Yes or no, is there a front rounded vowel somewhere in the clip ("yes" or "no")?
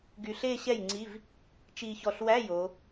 yes